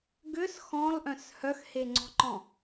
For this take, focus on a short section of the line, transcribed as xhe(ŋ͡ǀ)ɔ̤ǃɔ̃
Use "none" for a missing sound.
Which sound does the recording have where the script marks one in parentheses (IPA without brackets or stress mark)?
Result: ŋ͡ǀ